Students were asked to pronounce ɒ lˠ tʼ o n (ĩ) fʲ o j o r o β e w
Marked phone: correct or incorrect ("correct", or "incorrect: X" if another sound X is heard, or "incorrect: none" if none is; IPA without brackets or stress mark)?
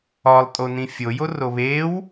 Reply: correct